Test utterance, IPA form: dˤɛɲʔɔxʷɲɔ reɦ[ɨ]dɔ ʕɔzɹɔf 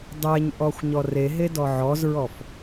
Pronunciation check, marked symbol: incorrect: e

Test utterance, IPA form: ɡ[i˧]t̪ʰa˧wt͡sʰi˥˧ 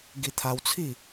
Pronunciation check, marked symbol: correct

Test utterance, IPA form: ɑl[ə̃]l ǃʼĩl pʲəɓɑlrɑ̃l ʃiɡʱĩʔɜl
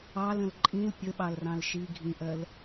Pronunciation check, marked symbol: correct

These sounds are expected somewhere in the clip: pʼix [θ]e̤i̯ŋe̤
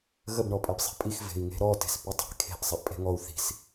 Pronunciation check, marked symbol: incorrect: v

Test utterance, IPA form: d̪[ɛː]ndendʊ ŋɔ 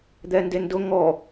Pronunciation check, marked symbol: incorrect: ɛ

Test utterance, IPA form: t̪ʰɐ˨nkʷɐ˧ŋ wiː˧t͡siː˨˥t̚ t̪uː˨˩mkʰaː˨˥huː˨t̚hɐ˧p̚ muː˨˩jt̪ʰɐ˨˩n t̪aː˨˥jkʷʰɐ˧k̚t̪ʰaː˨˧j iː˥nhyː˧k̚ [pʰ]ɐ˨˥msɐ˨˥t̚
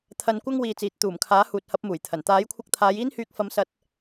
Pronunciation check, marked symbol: incorrect: f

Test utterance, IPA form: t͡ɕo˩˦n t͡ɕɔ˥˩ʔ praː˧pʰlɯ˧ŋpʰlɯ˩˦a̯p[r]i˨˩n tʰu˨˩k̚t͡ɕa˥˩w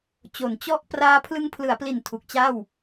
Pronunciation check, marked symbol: incorrect: l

